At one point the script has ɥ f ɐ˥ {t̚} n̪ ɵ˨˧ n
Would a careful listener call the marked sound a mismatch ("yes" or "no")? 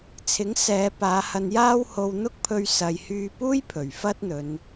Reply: no